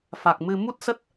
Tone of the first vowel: low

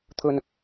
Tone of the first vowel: low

